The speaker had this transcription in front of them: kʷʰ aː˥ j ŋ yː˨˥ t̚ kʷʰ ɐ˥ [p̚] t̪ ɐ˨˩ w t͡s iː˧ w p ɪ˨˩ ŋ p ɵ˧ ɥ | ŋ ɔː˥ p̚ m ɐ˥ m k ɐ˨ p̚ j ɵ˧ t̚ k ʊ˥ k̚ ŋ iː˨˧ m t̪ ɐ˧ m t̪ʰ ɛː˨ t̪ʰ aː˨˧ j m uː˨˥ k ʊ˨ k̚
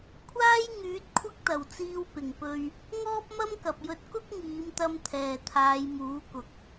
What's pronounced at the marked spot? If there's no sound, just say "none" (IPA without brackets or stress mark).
k̚